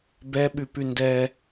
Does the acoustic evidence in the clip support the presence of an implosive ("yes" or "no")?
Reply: yes